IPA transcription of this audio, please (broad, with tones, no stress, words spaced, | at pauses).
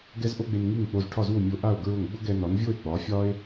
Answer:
ɡɛ˥zʔo˥ɡ͡be˧n ŋi˥˩ŋk͡po˧z ʈʰɒ˥˩zu˥˩o̯ mʲo˧ʔa˥˩o̯ ɡɹʊ˥˩ŋ ɡ͡bʊ˥ɡɛ˧ nɒ˩˥nvʲo˥˩e̯ ɡ͡bɒ˩˥fʲɒ˥e̯